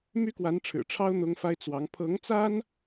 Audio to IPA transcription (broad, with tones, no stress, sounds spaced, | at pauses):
m y˥ k w a˧˥ n ʈ͡ʂʰ ɻ̩˨˩ ʈ͡ʂʰ ɑ˥ ʊ̯ n̪ ʊ˥ ŋ f a˥ ɪ̯ t͡s w ɑ˧˥ ŋ pʰ ɤ˧˥ ŋ t͡s a˥ n